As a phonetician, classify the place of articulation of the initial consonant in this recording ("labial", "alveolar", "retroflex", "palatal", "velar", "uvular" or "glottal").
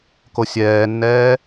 velar